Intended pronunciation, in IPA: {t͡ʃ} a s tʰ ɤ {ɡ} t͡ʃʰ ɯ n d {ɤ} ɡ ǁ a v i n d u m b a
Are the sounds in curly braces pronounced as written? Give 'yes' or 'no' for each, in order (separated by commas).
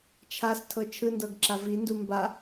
no, no, yes